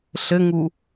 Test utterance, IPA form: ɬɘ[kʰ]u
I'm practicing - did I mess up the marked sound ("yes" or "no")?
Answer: yes